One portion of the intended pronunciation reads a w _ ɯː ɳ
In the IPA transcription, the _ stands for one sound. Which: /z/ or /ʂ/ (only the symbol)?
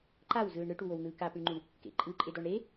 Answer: z